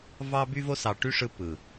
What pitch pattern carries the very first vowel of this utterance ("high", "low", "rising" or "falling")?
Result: high